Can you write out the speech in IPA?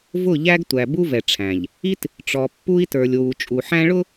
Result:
v ʊ˦˨ ʎ æ˦ ɡ tʷ æ˨ b u˦ v ɛ˨ ʈ͡ʂʰ æ̃˨ ʎ | i˦ t | ʈ͡ʂ ɔ˨ pː u˦ i̯ t ə˞˨ lʲ w u˨ t͡ʃʼ u˨ ħ æ̃˦ ɭ ʊ˦

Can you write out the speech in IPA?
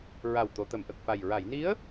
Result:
ɹ a˨˩ w t̪ o˨˩˨ t̪ ə˨˩˨ m ʔ ə˨˩ k̚ f a˨˩ j ɹ a˨˩˨ j n i˧˥ ə̯

